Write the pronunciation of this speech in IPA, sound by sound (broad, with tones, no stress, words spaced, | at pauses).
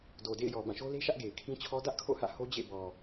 do˨dḛ˦˨ɪ̯jɔ˨ bã˦˨ʃo˦le˦ʃä˦ʔ ɡe˨ɪ̯kʰĩ˦t͡ɕʰɔ˦ dä˦ʔkʰo̰˦˨hä̰˦˨ ho˦d͡ʑḛ˦˨ bɔ˨